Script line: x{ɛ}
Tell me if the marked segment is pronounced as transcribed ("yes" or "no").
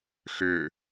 no